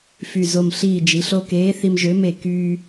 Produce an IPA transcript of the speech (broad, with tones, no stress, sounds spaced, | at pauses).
f y˧˩ z o˧˩ m ɬ iː˧˩ d͡ʒ i˩˧ ɬ o˧ k eː˨˥ θ i˧ m ʒ ø˨˥ m e˧˩ k yː˧